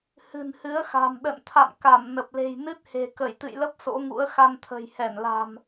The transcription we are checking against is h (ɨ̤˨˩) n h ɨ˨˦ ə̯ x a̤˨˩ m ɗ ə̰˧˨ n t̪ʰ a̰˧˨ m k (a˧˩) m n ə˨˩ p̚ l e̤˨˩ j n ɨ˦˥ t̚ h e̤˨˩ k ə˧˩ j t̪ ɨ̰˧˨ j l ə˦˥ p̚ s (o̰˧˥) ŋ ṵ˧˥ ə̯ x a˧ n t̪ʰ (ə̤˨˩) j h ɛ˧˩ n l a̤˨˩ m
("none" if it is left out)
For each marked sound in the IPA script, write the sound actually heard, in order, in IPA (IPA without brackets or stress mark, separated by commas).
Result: ɨ̤˨˩, a˧˩, o̰˧˥, ə̤˨˩